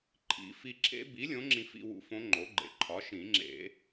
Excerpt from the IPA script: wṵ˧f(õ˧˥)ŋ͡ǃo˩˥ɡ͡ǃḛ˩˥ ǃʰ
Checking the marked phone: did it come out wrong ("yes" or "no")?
no